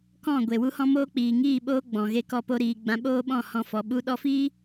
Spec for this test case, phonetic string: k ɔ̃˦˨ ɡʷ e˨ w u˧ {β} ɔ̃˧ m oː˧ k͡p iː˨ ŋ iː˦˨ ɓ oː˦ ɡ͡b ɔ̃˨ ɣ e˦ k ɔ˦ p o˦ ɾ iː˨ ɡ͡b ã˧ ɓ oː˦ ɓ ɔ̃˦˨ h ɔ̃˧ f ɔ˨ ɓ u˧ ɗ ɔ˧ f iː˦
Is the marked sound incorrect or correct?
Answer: incorrect